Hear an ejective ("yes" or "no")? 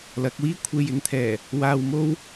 no